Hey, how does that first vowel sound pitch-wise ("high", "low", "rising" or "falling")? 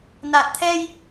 low